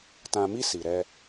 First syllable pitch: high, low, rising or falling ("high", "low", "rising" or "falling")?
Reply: low